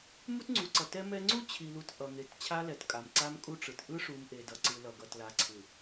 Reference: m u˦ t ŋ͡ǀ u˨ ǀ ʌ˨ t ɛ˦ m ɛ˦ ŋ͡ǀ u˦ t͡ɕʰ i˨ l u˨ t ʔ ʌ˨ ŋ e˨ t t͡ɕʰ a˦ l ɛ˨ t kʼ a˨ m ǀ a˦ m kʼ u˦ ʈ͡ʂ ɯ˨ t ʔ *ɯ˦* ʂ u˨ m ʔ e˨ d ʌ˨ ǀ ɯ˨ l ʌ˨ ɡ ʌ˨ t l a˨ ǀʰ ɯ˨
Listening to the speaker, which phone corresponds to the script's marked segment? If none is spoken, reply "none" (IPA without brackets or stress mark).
ɯ˦